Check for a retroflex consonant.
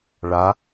present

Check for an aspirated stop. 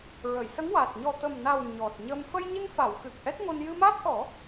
absent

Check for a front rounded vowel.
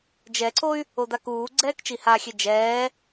present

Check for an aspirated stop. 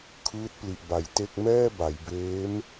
present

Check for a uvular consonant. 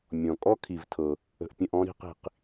present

